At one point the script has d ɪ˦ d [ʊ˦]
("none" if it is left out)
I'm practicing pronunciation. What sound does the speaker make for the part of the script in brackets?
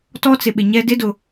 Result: ʊ˨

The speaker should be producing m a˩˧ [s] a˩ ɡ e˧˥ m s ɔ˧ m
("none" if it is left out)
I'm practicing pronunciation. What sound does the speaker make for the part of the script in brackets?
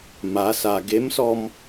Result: s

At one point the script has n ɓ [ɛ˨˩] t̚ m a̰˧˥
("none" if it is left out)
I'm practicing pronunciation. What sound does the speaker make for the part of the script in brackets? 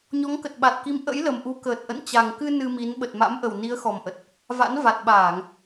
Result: ə˨˩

